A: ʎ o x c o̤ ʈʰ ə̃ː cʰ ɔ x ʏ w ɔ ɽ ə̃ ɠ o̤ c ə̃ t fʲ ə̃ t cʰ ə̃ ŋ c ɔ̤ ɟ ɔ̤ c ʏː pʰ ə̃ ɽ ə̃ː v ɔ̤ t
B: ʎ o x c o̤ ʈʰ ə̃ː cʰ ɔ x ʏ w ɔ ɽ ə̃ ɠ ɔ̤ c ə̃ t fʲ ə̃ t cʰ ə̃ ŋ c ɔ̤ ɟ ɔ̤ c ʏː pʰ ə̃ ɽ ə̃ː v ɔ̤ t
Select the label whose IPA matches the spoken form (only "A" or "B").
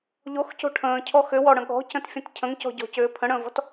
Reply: B